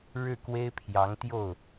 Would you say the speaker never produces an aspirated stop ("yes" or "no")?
no